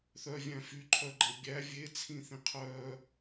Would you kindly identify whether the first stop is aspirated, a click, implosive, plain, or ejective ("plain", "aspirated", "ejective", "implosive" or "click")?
click